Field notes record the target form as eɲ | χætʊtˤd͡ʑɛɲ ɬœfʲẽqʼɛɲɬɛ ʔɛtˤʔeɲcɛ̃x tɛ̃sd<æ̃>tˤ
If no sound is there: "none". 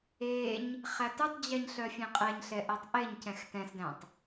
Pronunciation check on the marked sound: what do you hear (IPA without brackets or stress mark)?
æ̃